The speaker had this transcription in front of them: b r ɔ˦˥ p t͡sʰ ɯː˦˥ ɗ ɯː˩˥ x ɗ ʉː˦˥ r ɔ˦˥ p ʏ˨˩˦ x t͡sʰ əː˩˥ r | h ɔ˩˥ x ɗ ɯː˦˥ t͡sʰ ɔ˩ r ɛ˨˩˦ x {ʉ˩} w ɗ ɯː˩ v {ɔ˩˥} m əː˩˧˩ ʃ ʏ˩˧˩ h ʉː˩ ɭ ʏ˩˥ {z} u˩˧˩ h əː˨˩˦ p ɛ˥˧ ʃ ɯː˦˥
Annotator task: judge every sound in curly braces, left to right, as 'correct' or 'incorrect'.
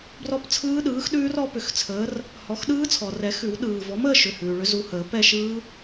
incorrect, correct, correct

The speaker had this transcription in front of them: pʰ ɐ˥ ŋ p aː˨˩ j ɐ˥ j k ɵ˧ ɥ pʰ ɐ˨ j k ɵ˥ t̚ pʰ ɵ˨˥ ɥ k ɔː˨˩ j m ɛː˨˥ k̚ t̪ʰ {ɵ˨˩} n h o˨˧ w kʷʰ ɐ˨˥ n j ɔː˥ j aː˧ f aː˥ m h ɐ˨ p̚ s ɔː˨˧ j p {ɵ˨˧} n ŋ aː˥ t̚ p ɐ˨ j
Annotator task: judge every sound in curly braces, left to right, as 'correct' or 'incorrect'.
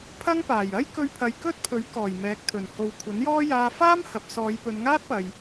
correct, correct

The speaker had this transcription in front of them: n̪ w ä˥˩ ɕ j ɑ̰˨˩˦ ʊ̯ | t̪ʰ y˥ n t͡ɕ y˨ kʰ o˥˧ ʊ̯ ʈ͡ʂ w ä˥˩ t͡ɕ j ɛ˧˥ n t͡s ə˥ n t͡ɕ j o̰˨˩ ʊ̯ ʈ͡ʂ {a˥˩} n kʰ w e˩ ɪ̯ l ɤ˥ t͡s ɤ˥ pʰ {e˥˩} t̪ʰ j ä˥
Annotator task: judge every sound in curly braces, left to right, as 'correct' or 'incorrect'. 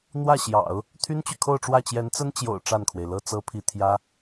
correct, incorrect

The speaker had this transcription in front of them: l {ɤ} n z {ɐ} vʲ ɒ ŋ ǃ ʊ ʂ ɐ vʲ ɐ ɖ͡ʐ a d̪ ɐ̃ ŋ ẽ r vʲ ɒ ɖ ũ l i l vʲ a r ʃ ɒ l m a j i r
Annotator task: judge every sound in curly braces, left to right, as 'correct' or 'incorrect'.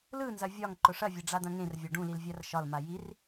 incorrect, correct

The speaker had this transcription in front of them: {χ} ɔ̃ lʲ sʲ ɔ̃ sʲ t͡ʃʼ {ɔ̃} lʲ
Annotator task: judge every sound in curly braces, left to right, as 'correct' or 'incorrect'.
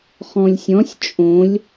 correct, incorrect

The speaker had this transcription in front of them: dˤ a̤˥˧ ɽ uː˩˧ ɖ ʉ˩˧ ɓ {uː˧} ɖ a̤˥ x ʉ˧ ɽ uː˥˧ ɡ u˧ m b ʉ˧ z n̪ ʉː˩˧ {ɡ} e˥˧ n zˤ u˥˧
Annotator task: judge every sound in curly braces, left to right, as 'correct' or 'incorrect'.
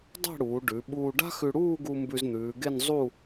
correct, correct

